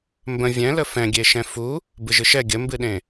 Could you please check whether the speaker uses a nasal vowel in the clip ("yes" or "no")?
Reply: yes